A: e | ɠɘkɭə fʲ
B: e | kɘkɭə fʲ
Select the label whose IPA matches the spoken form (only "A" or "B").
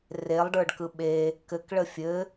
B